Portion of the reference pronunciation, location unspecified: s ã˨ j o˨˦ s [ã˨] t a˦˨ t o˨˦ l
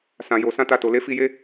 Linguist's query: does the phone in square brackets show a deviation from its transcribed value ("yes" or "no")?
yes